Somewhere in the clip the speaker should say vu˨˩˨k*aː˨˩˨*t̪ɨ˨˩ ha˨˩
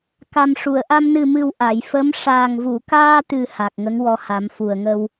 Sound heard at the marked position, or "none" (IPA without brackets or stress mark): aː˧